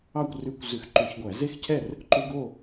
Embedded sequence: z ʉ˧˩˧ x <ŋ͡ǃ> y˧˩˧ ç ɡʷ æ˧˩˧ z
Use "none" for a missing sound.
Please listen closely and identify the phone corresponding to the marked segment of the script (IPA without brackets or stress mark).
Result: ǃ